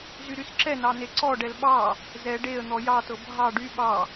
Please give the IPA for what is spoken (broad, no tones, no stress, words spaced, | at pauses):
zyɾysǁɛnɑ neǀɔɖɛl ɓɑ | zɛ ɖeə̯n̪ɔ jɑtɤ bʱɑ ɖy ɓɑ